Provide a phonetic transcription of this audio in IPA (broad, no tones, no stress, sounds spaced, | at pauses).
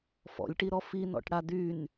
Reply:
f ɔ̰ lʲ ʈ i ɾ ɔ f i n ɔ̰ ʈ ɽ a d y n